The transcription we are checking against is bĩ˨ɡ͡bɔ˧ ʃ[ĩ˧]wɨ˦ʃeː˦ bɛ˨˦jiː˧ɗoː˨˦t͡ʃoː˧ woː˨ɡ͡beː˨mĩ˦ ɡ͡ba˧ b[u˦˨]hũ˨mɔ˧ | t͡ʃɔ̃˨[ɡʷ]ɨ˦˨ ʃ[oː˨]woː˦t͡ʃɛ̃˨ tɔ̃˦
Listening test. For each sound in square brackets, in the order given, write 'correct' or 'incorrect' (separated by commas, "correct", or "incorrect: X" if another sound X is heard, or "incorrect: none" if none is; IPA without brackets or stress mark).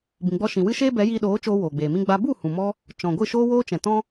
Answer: incorrect: ĩ˨, correct, correct, incorrect: oː˦